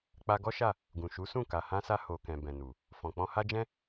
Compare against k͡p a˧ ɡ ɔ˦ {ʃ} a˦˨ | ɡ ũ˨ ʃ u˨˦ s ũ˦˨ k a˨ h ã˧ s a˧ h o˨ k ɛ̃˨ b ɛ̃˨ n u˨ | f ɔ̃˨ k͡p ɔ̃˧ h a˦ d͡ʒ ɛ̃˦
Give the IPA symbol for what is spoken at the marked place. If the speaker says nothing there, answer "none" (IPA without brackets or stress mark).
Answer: ʃ